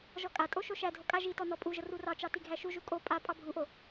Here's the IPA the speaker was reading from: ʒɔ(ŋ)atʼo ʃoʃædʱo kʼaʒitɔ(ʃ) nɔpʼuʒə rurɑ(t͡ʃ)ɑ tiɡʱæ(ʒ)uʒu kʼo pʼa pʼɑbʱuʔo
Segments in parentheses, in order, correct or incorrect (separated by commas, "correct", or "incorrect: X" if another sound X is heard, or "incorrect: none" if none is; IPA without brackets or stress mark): incorrect: kʼ, incorrect: none, correct, incorrect: ʃ